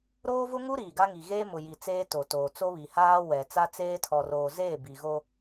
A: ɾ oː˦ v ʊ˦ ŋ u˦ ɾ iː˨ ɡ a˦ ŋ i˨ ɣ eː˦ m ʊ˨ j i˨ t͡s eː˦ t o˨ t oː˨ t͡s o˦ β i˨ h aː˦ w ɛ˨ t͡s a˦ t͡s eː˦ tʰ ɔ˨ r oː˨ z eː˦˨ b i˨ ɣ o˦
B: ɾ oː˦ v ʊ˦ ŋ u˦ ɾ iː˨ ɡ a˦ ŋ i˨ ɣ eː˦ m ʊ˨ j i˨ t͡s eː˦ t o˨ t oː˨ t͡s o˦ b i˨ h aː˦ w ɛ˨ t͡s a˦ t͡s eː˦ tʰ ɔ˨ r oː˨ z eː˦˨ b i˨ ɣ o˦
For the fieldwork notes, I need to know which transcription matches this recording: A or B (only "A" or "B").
A